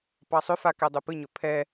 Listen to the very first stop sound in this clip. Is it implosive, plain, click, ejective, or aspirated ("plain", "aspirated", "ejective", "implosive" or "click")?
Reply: plain